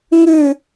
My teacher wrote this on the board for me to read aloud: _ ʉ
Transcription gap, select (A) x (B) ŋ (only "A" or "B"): B